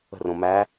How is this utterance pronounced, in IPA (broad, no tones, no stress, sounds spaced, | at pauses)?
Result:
ə̤ r õ m æ